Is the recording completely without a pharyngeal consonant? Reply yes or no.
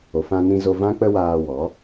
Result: yes